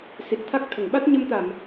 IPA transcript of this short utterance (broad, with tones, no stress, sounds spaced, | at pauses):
s i˨˩ t̚ t̪ʰ a˦˥ k̚ t̪ʰ ə˨˩˨ ŋ ɓ a˦˥ t̚ ɲ ə˧ m t̪ a˨˩˨ m